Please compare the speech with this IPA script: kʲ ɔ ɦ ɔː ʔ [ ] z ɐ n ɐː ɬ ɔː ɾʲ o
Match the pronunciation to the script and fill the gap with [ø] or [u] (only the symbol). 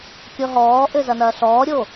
ø